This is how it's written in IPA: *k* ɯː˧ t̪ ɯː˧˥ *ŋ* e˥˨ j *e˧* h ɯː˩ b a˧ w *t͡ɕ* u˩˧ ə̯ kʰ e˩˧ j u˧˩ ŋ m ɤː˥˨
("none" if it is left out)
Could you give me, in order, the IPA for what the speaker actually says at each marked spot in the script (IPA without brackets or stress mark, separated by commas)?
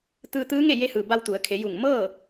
t̪, ŋ, e˧, t̪